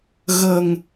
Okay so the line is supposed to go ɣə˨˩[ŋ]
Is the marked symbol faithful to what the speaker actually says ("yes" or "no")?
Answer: yes